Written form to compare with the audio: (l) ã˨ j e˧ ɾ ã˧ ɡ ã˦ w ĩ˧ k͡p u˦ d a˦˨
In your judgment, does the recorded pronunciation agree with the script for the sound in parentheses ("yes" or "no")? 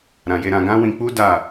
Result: no